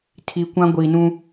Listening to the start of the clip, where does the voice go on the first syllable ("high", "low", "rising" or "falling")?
low